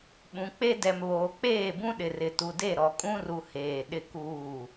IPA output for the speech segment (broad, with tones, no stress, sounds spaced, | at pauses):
ɓ ũ˨ k͡p e˦ d ɛ˨ m β oː˨ k͡p eː˦˨ b ũ˦ ɗ ɪ˨ r ɪ˨ t u˨ d e˦˨ ɾ ɔ˨ kʼ ũ˦ r u˨ h eː˨ ɗ ɪ˦ k uː˦˨